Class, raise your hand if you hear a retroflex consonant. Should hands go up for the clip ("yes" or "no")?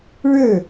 yes